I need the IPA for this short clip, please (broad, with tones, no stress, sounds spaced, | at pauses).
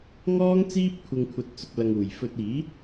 ŋ ɔː˥ ŋ t͡s iː˥ p̚ kʷʰ ɪ˧ ŋ kʷʰ ɐ˧ t̚ t͡s ʊ˧ k̚ l ɐ˧ ŋ uː˨ j f ɵ˧ t̚ iː˨˥